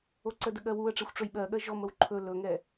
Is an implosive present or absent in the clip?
present